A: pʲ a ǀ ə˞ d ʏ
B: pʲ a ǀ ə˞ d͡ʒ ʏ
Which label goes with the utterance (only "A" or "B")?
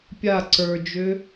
B